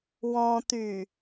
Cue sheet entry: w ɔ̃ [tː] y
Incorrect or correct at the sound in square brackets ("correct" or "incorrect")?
incorrect